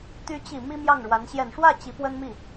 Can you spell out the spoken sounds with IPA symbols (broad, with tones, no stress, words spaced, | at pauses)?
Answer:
t̪y˧˥t͡ɕi˨˩ mi˥mjɑ˥˩ŋɻwa˧˥n ɕjɛ˨˩nʂwä˥˩ t͡ɕi˧˥pwə˥nmi˥˩